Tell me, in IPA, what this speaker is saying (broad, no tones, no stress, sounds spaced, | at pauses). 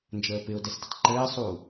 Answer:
n d͡ʒ əː p ɪ ʊ̯ d ɛ s d ɪ tˤ ǃ ɘː sˤ uː